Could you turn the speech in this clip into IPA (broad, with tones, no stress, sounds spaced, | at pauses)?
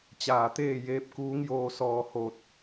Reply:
t͡ɕ aː˧˩ t̪ eː˥˨ j eː˧˥ p̚ k uː˧˥ ŋ j oː˧ s ɔː˧˩ h o˧˩ t̚